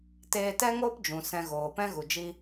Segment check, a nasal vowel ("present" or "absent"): present